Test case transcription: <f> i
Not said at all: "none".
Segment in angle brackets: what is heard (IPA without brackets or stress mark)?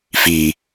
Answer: f